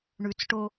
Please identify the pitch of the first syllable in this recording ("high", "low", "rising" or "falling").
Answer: low